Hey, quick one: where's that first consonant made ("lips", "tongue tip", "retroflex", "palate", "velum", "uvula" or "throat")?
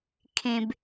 velum